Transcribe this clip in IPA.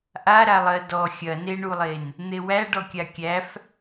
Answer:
ʔaɾa lˠɜdɔ xʲɐneɳulˠen | n̪ewæɖɔ kʲakʲæf

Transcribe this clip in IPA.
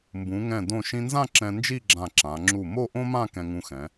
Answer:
mbũ˩˧ŋɛ̃˧˩ dõ˧˩ʃĩ˧nzã˥˧ ǁɛ̃˧nd͡ʒi˥˧ɡ͡ǁã˧˩ ǁã˩˧ ŋ͡ǁu˧˩ mo˥˧ʔõ˥mã˥˧ kɛ̃˧ŋũ˧xɛ̃˩˧

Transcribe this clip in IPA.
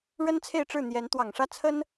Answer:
ɻə˥n t͡sʰe˥˧ɪ̯ʈ͡ʂɻ̩˥˩ n̪jɛ˧˥n t̪wɑ˨˩ŋʂä˥˩ t͡sʰə˥n

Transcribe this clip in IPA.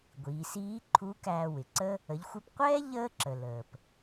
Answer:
ɡʷiː˩˧siː˧˥ǃʰu˧˥ kæː˧wɪ˩ ǀə˥ | ə˩˧ʎxʷɪ˧pqʷɛː˥ ʎəː˥ǁə˩ ləː˩p

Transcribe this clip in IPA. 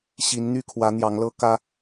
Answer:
ɕi˨˦nn̪y˦ kʰwä˨˦n̪jɑ˨˦ŋlɤ˦ kä˦

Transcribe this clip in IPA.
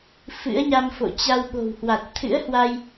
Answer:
fɨ̰˧˥ə̯ɲa˧mfo̰˧˨ t͡ɕa˧wɓo̤˨˩whwa˨˩t̚ t̪ʰɨ̰˧˥ə̯hwa˧j

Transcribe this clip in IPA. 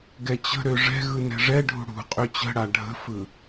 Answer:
ɡɛt͡ɕə̤ɾø ʐɛ̤ɣɯ nɛ̤ʐɛɖʱṳ ɽṳqʼø t͡ɕə̤ɽa ɖʱə̤fɯ

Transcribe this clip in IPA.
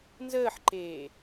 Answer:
nzəːħǃeː

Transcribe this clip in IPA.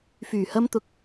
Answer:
fyː˨˩hɐ˧mt̪ʊ˨˥k̚

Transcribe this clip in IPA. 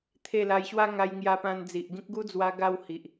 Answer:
t̪ʰe˥˧ la˧jɕwa˦ ŋa˧jŋja˧ pã˧nd͡zi˨ʔɡĩ˦k̚ ɡu˦d͡zwa˧ ɡa˥˧whi˨ʔ

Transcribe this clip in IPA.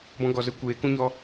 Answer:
bɔ̃˧ɡɔ˨zə˧ kʷeː˨˦kũ˦ɲɔ˧

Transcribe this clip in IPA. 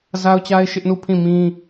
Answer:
za˦ʊ̯t͡ɕa˦ɪ̯ ʃɪ˦ʔnu˦˨pʰĩ˦˨mĩ˦

